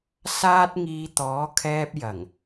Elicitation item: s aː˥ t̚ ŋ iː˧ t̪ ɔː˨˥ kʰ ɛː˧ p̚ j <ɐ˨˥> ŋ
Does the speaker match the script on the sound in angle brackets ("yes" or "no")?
no